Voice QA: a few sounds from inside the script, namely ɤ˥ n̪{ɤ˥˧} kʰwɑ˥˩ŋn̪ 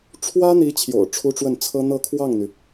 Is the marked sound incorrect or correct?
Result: correct